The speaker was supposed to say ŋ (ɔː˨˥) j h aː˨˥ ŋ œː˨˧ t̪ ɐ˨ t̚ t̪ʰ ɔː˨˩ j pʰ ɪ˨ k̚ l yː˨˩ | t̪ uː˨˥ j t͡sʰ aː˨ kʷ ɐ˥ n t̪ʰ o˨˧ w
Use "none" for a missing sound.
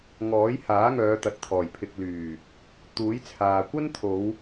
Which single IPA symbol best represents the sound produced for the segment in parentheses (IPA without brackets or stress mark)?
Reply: ɔː˨˥